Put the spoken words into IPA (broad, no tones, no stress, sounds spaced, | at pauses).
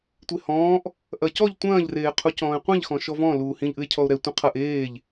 tʷ e h ɔ̃ː ʔ | ʔ ɐ c ɔ ʎ tʷ ɐ̃ː ʎ r eː qʰ u c ɔ̃ː e̯ qʷ ĩ ʎ x ɔ̃ ʃ ɔ v ɔ̃ l uː h ĩ ʎ ʔ ɨ e̯ cʰ ɔ o̯ ɾ ɛ tʷ ĩ qʰ ɐ ʔ eː ʎ